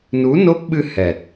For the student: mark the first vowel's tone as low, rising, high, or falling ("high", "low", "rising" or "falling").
rising